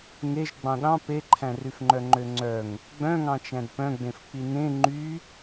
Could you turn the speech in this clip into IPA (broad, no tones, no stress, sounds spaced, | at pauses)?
ŋ e ʒ ɡ͡b ɑ̃ ɗ ɑ̃ p e ǃʰ æ̃ r y f ŋ͡ǃ œ ŋ͡ǃ ø ŋ͡ǀ œ ŋ | ɡ͡b œ̃ ŋ ɑ̃ t͡ʃ æ̃ d p œ̃ ɡ͡b ẽ f k͡p i n ẽ ŋ͡ǃ y